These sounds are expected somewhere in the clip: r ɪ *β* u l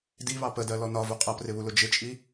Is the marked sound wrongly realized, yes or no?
no